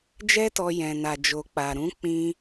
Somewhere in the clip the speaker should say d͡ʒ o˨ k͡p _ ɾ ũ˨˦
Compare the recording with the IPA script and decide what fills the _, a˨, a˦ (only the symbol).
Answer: a˨